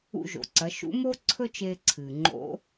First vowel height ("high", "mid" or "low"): high